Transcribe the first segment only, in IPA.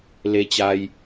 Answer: l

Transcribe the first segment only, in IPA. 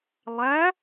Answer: lˠ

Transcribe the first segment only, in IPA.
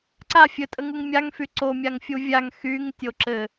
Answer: ǀ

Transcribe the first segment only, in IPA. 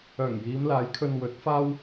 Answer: œː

